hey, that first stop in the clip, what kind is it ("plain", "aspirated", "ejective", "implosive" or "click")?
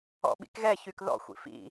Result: implosive